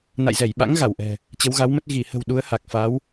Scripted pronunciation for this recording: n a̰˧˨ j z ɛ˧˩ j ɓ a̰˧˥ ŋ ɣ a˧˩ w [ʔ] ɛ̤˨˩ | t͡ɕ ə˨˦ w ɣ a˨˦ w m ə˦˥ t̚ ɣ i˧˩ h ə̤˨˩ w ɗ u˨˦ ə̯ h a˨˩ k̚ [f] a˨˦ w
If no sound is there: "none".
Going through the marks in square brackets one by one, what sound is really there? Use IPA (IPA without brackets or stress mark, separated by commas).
ʔ, f